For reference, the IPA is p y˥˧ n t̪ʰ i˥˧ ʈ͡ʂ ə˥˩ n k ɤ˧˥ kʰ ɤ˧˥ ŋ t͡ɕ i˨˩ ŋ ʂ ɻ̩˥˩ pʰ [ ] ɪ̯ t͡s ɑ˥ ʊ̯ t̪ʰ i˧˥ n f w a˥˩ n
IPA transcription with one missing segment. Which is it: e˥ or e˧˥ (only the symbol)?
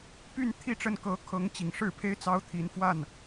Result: e˥